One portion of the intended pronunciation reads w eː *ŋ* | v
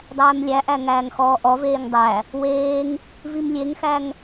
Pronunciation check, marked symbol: correct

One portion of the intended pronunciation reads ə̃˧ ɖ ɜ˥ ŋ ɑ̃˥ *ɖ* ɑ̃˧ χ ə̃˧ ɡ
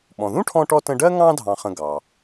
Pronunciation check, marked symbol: incorrect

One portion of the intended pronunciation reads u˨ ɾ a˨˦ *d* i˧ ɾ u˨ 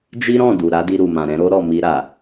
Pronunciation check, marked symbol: correct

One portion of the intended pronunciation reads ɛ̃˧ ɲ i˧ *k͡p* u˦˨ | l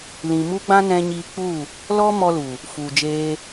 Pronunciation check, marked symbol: correct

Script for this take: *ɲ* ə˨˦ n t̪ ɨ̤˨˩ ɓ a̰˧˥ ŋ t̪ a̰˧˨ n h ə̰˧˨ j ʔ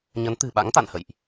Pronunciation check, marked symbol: correct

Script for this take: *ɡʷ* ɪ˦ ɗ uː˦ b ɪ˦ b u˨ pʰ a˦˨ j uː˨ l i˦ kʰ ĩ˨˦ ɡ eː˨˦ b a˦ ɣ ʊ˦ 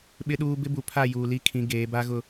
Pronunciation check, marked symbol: incorrect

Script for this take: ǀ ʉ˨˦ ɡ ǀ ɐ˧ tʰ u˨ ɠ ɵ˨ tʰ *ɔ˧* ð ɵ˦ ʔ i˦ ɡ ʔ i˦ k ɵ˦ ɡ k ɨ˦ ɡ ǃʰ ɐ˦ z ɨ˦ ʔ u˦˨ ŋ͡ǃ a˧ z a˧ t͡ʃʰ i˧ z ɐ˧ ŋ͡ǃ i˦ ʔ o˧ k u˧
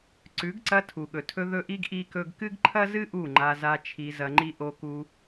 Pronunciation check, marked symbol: incorrect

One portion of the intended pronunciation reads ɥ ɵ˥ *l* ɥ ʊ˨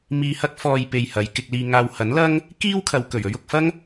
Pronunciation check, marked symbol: incorrect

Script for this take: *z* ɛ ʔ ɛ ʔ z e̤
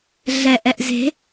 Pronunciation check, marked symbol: incorrect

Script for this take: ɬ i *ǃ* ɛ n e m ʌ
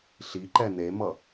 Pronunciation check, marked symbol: correct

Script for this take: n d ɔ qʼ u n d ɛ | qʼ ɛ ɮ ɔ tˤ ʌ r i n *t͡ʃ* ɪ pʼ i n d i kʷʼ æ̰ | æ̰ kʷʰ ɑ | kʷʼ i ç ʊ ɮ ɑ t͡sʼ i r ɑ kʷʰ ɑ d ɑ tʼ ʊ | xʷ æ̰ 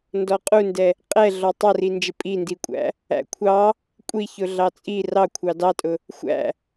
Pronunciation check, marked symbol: incorrect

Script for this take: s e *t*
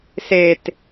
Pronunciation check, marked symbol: correct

